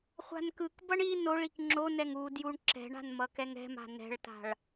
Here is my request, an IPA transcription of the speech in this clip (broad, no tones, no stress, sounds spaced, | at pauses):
χʷ a̤ n k ɯ k b ʌ ɳ i n o ɭ i k ŋ͡ǁ o n ɛ ŋ u d j u ɳ ǁ ɛ̤ ɳ a̤ n m ʌ k ɛ ŋ ɛ̤ m a̤ n ɛ̤ ɭ t a̤ ɭ